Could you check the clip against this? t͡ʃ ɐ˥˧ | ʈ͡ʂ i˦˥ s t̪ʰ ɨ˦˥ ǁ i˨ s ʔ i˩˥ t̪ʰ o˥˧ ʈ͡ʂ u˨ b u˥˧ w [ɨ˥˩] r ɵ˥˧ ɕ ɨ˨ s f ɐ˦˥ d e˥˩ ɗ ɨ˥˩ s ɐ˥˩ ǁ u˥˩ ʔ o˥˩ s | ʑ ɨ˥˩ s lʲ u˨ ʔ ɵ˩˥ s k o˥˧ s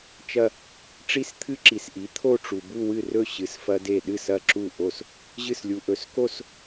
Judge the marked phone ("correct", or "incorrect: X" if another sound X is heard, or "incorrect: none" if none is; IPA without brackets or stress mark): correct